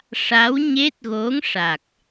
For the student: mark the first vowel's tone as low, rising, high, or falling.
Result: rising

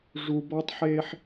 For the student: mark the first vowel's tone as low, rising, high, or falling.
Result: low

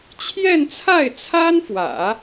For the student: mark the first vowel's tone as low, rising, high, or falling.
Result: falling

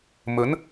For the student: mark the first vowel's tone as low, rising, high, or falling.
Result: rising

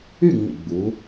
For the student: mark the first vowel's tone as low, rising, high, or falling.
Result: falling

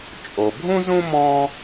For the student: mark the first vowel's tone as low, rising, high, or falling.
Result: low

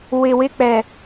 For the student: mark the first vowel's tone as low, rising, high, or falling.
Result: low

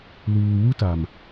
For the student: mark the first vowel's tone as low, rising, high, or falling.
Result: low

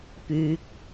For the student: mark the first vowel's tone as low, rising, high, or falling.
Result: high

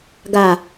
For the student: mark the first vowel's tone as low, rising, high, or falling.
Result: low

